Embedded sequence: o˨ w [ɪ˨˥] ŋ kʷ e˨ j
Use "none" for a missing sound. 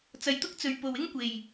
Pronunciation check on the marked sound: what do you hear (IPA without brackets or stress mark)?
ɪ˥